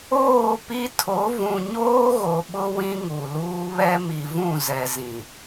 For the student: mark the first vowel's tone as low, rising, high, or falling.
falling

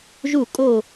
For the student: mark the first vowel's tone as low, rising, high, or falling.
falling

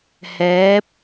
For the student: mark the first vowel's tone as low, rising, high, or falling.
rising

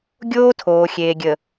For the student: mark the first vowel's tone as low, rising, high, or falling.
high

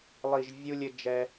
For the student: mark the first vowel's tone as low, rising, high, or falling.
low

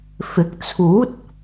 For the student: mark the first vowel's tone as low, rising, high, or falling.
rising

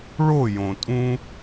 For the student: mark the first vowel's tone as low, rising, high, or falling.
falling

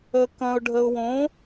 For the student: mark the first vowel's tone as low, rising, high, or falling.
low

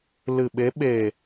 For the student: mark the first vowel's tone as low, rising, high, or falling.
low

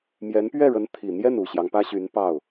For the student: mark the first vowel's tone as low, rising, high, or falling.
rising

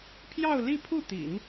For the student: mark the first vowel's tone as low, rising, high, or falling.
falling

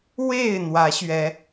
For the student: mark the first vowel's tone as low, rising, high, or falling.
falling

